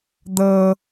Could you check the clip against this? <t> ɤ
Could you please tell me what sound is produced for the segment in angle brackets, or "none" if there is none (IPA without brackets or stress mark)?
d